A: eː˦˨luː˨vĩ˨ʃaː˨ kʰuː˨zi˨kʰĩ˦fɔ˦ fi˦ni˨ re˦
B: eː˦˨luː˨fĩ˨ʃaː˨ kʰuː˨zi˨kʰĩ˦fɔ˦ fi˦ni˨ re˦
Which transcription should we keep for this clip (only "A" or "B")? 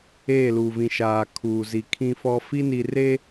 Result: A